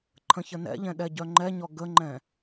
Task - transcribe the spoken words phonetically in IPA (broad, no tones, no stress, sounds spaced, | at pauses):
ǃʰ ə̃ ç ə n ɛ̰ ʎ ɛ̃ ɗ ɛ ɟ œ ŋ͡ǃ ɛ ɲ ɔ ɡ ə ŋ͡ǃ ɛ̃